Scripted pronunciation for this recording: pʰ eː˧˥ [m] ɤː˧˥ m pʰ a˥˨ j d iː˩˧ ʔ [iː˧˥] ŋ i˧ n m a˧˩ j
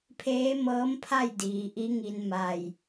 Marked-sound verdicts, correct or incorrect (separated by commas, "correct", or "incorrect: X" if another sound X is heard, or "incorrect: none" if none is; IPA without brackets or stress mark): correct, incorrect: i˧˥